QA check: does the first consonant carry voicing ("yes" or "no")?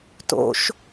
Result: no